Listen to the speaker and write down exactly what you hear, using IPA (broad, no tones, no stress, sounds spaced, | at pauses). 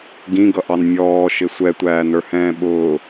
ɡ ĩ ɡ ʌ ʔ ɑ n mʲ ɔː ʃ ɪ sʷ ɛ tʷ æː n ə˞ h ɛ̃ː ɓ ʊː